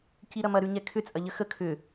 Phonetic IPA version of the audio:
c i ɾ ɐ m ɐ ɾ ʉ ɲ ɛ kʰ ʏ t͡sʼ ɐ ʎ ə x ə kʰ ʏ

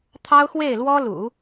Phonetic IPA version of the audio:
t̪ʰ ɑ˥ ʊ̯ x w e˥˩ ɪ̯ l w ɔ˥ l ṵ˨˩˦

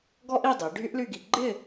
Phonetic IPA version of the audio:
ɡ ɔ˥ ʔ i˥˧ dˤ i˩˧ ɖʱ y˥ ʔ l y˥˧ ɡ i˧ ɡ͡ǃ ɪ˥˧

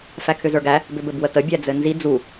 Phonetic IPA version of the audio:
f æ kʰ ʏ z ə˞ ɡ æ | b ʏ b ɘ b w ə t ə bʲ æ d͡z ɘ n z i d͡z u

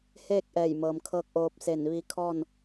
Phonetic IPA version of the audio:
h eː˥˨ k̚ ʔ ɛː˧˩ j m ɤː˩ m kʰ ɤː˧ k̚ ʔ oː˧ p̚ s e˧˩ n ʋ i˧ kʰ ɔː˥˨ n

